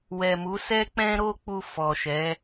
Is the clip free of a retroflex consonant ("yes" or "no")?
yes